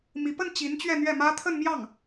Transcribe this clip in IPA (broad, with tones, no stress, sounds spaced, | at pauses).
m i˧˥ p ə˥˩ n t͡ɕ i˧˥ n t͡ɕ ɥ ɛ˥˧ n̪ ɥ ɛ˥˩ m ä˥ t̪ʰ ə˥˧ n m j ɑ˥˩ ŋ